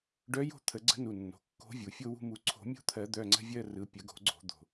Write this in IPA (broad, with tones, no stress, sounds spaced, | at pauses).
ɖ œ˧˥ j o̤˦˨ t̪ʰ ə˨˩˦ ɡ͡ǀ ə̤˧˥ n u˩˧˩ nː o̤˩˧˩ kː o̤˧˥ vʲ u˩ fʲ o˦˨ w ṳ˦˨ m u˨˩˦ ǀʰ o̤˨˩˦ mʲ o̤˧˥ t̪ʰ ɜ˨˩˦ d̪ œ˩˧˩ ŋ͡ǀ ə̤˦˨ vʲ ɜ˦˨ r ɯ˩˧˩ pʲ ə˨˩˦ ɡ o̤˨˩˦ ɡ͡ǀ o̤˨˩˦ d̪ o̤˩